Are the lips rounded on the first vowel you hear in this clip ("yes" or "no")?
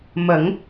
no